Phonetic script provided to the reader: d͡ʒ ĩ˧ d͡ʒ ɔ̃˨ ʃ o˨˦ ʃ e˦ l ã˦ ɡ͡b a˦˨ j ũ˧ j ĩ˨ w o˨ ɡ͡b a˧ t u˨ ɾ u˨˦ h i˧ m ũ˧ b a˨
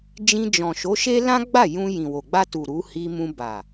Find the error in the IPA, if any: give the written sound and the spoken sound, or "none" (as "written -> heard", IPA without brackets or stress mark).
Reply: none